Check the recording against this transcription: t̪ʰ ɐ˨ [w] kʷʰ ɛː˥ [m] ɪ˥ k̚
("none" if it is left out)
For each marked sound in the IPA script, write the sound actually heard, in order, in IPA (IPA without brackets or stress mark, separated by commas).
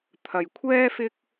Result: j, f